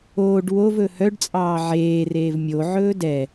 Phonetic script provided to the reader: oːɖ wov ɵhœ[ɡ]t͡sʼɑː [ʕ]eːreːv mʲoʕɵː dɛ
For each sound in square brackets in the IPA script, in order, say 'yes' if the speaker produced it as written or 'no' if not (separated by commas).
no, yes